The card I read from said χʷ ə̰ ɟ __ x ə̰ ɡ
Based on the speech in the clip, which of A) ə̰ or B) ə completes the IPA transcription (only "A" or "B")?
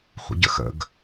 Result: A